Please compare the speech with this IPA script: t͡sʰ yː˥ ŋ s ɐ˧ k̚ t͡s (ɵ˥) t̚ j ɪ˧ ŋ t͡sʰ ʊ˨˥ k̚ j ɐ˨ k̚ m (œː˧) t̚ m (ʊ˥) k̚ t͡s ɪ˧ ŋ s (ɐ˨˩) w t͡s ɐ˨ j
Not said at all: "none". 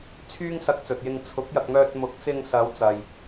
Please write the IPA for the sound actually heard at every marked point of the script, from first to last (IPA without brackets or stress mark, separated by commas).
ɵ˨, œː˧, ʊ˨˥, ɐ˨˧